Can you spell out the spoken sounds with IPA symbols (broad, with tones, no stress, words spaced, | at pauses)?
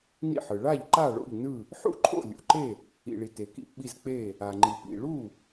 nḭ˥˩ħɯ˩ ɭa˥˩ʎ ǃa˥˩ɭo̰˥˩ʎnɯ˥˩ | ħṵ˥˩ǃʰo̰˥˩ lʲṵ˩ǃe˥˩ | ḭ˩ɭi˩ te˩kḭ˥˩pɓi˥˩zk͡pe˥˩ | a˩ŋ͡ǃi˩ pḭ˩ɭu˥˩